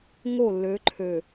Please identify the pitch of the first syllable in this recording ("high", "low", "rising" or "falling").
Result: falling